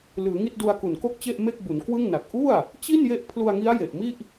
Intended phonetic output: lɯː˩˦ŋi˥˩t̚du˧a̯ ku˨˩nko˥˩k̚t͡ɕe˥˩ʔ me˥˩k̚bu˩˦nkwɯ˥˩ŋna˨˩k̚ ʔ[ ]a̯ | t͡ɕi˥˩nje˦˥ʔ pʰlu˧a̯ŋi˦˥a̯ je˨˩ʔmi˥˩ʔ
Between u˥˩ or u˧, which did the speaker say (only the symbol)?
u˥˩